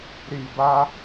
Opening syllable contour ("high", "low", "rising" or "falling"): low